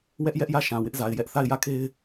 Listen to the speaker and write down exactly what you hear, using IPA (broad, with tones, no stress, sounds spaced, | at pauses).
w ɛ˦ ʔ j ɛ˦ ʔ j ä˦˨ ʃ ã˨ w ɪ˦ ʔ z a˨ ɪ̯ j ɛ˦ ʔ θ a˦˨ ɪ̯ j ä˦˨ kʰ e˦ ɪ̯